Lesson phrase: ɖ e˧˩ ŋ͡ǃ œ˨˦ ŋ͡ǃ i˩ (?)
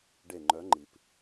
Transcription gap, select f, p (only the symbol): p